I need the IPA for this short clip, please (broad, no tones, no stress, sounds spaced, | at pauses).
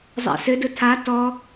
zˤ a̰ s ɘ d ʊ tʰ a t ɔ